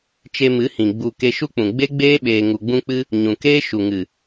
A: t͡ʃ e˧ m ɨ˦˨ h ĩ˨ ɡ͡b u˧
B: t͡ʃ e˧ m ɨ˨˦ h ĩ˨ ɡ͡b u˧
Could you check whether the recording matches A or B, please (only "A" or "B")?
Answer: B